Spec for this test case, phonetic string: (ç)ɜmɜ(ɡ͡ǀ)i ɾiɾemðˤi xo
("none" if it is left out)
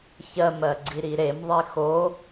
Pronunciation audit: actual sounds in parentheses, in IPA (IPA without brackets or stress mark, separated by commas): ç, ɡ͡ǀ